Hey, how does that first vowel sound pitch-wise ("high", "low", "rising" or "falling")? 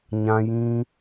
high